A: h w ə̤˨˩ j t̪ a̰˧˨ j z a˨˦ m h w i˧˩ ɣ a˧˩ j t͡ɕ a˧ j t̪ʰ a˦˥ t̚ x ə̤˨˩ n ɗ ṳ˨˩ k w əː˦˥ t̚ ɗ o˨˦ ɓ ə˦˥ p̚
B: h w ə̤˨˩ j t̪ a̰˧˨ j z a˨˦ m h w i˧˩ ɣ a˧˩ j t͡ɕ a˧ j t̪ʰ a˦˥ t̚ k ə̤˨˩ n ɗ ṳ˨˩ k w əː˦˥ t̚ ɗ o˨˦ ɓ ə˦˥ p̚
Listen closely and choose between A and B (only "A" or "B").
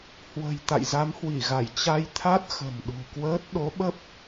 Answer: A